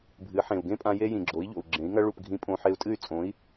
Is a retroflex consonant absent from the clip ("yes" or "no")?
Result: no